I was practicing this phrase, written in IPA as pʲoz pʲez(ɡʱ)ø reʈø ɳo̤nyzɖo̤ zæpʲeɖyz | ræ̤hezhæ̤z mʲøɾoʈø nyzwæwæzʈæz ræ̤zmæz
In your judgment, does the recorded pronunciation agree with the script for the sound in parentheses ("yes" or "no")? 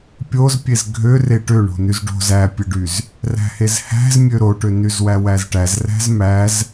yes